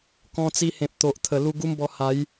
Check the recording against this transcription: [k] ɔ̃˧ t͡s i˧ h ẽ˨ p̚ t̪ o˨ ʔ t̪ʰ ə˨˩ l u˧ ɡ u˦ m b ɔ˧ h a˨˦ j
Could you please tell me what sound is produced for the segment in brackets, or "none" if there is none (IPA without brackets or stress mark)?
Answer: k